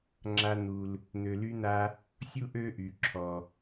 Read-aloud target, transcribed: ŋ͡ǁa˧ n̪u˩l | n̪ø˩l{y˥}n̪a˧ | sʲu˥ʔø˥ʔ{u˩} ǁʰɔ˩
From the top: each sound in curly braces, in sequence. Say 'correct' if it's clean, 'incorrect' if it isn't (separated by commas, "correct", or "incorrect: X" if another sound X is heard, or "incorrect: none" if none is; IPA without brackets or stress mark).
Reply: incorrect: y˧, incorrect: y˩